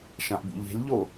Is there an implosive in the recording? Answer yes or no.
no